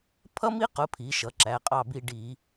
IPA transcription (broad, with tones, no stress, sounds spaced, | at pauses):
pʰ ʌ˥ m i˥ q ʊ˩˥ pʰ i˩˧ ʃ ʌ˩˧ ǁ æ˩˧˩ qʼ ɑ˦˨ b i˦˨ ɖ i˧˩˧